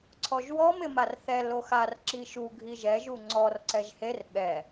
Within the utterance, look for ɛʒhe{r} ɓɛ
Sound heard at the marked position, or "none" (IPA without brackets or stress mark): r